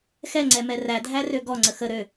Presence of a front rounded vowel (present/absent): present